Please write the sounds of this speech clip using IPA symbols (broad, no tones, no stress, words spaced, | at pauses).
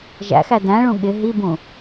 ʒæ̰xæ dæ̃ɭũ ɠɪ ɦibũ